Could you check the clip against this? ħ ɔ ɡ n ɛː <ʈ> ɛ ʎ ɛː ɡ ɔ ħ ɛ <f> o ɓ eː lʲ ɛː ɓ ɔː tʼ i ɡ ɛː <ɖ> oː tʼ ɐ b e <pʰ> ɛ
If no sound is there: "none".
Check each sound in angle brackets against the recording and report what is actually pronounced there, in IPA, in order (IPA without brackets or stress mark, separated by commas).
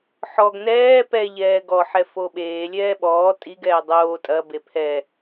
p, f, dˤ, pʰ